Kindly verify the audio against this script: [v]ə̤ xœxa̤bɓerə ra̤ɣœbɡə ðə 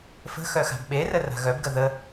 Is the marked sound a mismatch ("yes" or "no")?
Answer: yes